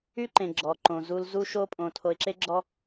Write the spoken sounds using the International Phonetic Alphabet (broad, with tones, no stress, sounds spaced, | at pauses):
y˦ ǃ ẽ˨ ɡ͡ǁ ɔ˨ ǃ õ˨ z u˦ l z u˦ ʃ o˦ pʼ õ˨ tʰ o˨ ɪ̯ ǁ e˦ ɡ͡ǁ ɔ˦